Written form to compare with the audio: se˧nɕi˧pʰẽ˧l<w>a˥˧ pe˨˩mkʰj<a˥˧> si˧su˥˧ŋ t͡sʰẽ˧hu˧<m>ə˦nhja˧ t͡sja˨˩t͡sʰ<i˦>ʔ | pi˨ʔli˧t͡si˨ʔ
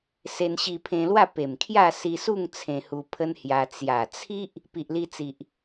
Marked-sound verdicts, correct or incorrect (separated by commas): correct, correct, incorrect, correct